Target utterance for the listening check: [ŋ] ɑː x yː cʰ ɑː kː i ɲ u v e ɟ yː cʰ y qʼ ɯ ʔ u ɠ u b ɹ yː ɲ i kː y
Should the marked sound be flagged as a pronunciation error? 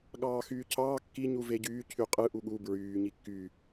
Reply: yes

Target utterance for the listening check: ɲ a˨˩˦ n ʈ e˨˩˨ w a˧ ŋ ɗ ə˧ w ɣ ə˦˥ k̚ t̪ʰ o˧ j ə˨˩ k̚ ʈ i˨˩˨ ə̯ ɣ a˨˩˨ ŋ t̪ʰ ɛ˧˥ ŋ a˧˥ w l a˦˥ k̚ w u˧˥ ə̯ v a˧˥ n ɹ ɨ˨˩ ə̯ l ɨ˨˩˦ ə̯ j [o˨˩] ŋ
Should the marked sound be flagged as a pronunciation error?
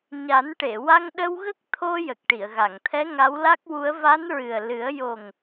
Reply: no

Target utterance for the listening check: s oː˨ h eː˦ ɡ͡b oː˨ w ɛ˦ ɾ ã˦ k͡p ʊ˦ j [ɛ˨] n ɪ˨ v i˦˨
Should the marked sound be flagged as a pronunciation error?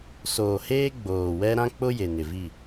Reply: yes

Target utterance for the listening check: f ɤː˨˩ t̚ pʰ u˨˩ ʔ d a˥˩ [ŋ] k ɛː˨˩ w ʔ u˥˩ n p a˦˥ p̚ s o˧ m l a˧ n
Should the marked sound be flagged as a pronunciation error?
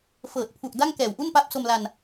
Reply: no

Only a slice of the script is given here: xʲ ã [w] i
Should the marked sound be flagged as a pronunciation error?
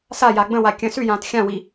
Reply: no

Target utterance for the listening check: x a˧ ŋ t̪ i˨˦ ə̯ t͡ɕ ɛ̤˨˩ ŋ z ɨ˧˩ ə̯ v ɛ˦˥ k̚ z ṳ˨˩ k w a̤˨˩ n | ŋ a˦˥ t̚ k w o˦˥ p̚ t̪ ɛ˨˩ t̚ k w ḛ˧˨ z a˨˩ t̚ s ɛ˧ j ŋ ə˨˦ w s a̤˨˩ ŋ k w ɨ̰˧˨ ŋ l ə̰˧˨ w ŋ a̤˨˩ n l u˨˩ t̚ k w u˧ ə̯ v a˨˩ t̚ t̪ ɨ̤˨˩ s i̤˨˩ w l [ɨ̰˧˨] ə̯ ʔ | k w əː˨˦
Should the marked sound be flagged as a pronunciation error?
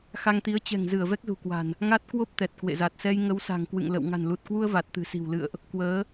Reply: no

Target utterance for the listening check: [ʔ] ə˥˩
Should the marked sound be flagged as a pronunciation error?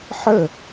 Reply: yes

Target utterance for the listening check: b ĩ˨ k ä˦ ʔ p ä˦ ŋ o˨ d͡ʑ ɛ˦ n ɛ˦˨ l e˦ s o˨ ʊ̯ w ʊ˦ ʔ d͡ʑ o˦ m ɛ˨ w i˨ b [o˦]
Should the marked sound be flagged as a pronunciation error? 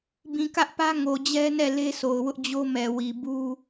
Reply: yes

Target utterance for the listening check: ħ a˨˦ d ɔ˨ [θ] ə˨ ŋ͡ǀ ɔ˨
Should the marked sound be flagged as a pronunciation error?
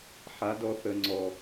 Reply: no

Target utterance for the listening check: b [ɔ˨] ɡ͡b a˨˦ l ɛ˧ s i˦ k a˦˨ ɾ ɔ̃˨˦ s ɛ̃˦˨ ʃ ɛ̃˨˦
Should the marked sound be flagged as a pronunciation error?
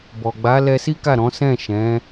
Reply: no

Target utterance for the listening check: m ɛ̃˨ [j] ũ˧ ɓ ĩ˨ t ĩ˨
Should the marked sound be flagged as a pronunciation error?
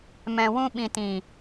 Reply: yes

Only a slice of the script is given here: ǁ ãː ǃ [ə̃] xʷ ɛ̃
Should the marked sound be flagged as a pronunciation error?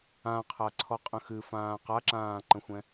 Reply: no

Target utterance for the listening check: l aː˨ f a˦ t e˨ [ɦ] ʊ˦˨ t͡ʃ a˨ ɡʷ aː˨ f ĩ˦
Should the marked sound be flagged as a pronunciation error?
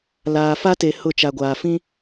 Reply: yes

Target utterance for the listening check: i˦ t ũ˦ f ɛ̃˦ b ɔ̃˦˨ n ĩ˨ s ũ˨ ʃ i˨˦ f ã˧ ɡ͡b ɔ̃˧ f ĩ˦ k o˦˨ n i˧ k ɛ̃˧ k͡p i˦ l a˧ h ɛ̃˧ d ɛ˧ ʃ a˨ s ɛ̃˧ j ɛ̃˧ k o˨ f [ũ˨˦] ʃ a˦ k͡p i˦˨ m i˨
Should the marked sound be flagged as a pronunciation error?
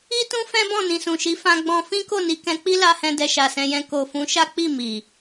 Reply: no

